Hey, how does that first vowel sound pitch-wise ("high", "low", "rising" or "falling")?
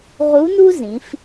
rising